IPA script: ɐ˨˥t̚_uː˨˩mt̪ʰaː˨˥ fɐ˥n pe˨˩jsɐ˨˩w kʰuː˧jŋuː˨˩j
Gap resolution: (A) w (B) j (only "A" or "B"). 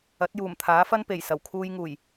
B